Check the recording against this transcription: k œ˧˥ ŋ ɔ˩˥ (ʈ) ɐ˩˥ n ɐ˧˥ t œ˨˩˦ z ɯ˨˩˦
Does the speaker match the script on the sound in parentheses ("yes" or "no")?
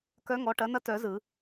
yes